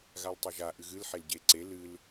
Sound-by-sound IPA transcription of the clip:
ɣ a l tˤ ɛ ʒ a ʔ ɨ ɣ ɨ l ħ e l ɟ e ǀ e l ɨ l

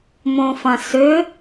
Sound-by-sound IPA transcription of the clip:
m õ f ɐ̃ s ʏ

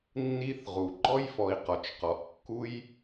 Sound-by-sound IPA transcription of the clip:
nː i˦ θ ʁ u˩ ɡ͡ǃ ɔ˥ j f ɔ˨ i̯ q ɔ˩ t͡ʃ q ɔ˩ ʔ kː u˦ j

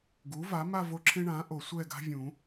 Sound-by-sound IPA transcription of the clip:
ɡ u˩˥ v a˩˥ m a˥˧ v o˥˧ ǁʰ ẽ˥ ɳ ã˩˥ ʔ o˨˩˦ sʷ ɛ˥˧ ɡ a̤˥ vʲ ũ˨˩˦

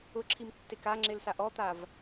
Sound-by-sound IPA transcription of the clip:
ʊ ǁʰ i m tː e k a ŋ͡ǁ ɪ l s a ʔ ɔ t̪ a v

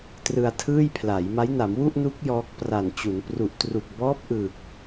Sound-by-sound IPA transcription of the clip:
t r ɯ˧ a̯ tʰ ɯː˥˩ j pʰ l a˩˦ j m a˦˥ j n a˩˦ m w u˥˩ ʔ n u˦˥ k̚ j ɔː˦˥ k̚ p r a˨˩ n t͡ɕ u˩˦ n p r u˨˩ ʔ t r u˨˩ k̚ b ɔː˦˥ p̚ ʔ ɯ˨˩ k̚

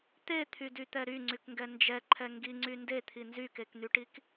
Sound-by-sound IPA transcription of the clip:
t̪ e t̪ʰ y d y t̪ ɛ ɾ y ŋ͡ǀ y k ŋ ɡ ɛ n d͡ʒ ɛ ǃʰ ɛ ŋ ɡ i ŋ͡ǀ y n d e t̪ʰ i n z y k e k n̪ y ʈ i k

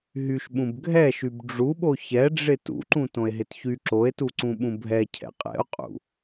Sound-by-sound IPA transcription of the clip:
ɦ y ʃ ɓ ũ b ɡʱ ɛ ʃ y b ɖ͡ʐ u ɓ o ç ɛ ɖ͡ʐ ɪ t ṵ ǃ ũ t õ e̯ ɦ ɪ t ç y ǁ o e̯ t u ǀ ũ ɓ ũ bʱ ɛ cʰ ɛ̰ qʼ ɛ̰ o̯ qʼ ṵ

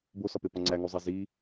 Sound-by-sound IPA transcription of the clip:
b o s ɒ p e p ɒ ŋ͡ǀ æ ŋ u zˤ e z i

